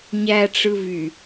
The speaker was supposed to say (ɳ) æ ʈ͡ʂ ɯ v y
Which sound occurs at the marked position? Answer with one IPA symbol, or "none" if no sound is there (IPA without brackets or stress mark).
ɲ